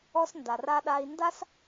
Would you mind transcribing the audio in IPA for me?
ɔ˧ s n d a˨ r a˧ ɗ a˧ i̯ n d a˦ s

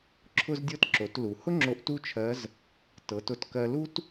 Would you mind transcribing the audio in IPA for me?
ǁʰ ʊ˧ z dʲ ɤ˧ t ǁ o˩˧ t l u˩ h ʊ˥ ŋ͡ǁ o˧ ʔ t u˥ t͡ʃʰ ɜ˧˥ z | t ɤ˩˧ t ʊ˧ t k ɜ˧ l u˥ t

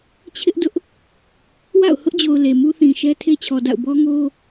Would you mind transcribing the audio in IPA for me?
t͡ɕʰ ɪ˦ ʔ d ʊ˦ ʔ | w a̰˦˨ ʊ̯ h ʊ˦ ʔ d͡ʑ o˨ ʊ̯ l e˨ m u˦ θ ĩ˨ ʃ ɛ˦ tʰ e˦ t͡ɕʰ ɔ˨ d a̰˦˨ ʊ̯ b ɔ˦ ŋ o˦

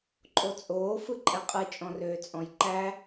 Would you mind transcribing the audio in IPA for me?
ǃʼ o t͡sʼ oː f ɯ ǃʼ ɛ qʼ ɯ t͡ʃʼ ɔ̃ r øː t͡sʼ ɔ̃ j ǃ æ

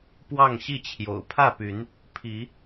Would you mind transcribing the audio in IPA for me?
p w ɑ˥˨ ŋ ɕ i˥˨ t͡ɕʰ j o̰˨˩ ʊ̯ pʰ ä˥˨ p y˨˦ n | pʰ i˨˦

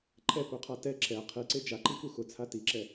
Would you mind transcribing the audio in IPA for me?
ǃʰ ɛ p u qʰ a t ɛ ǁ ɛ qʰ i ǀ e d͡ʒ a ǃ i k u x ʊ t͡sʰ a t i ǁ ɛ

